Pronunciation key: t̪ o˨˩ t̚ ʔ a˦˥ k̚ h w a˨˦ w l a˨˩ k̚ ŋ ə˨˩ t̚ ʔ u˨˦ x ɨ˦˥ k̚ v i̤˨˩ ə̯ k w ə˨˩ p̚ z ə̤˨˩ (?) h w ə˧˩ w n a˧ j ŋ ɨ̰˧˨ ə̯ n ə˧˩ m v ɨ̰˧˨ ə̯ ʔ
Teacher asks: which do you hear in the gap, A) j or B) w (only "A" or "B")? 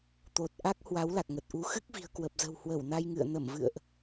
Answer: B